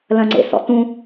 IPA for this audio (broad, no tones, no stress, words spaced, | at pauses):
lɐ̃ŋ͡ǀḛsɔ̰tũ